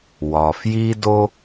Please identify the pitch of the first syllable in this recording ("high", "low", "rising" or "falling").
low